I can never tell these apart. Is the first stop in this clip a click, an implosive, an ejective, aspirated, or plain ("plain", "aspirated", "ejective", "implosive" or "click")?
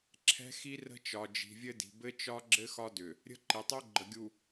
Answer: click